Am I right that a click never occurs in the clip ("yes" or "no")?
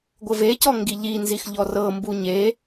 yes